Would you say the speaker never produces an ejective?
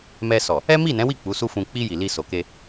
yes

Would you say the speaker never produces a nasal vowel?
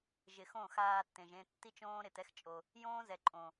no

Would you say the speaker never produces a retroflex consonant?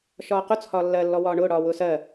no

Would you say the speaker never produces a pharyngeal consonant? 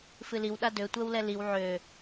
no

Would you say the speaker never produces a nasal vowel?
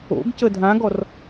no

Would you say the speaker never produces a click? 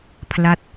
yes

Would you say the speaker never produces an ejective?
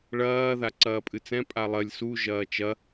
no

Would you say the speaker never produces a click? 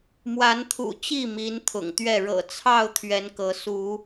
yes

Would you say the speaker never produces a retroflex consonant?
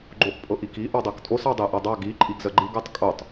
yes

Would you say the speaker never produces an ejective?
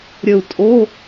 no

